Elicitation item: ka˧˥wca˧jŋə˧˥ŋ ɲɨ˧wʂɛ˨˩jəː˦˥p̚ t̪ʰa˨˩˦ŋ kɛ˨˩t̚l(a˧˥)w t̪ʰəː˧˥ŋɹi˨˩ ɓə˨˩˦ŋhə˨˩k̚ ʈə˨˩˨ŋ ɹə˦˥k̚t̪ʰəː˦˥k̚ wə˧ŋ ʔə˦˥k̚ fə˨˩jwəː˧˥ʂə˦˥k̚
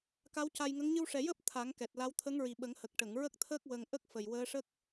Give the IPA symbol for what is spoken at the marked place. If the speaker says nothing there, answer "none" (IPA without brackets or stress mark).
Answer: a˧˥